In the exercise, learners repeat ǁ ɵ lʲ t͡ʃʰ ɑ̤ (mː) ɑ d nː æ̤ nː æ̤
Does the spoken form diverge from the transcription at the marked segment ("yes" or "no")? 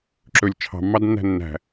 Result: no